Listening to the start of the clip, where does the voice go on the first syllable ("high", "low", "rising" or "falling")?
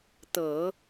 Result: low